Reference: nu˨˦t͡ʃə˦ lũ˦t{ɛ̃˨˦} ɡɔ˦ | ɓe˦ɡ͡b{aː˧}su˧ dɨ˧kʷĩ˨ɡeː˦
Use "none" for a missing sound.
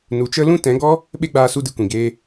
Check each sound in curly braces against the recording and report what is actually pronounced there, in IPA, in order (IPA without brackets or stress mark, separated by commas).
ɛ̃˨˦, aː˧